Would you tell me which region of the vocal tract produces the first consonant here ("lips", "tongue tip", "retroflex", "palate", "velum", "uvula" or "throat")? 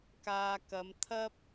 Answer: velum